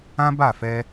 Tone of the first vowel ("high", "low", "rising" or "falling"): high